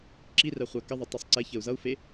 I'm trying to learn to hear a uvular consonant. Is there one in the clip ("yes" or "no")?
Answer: yes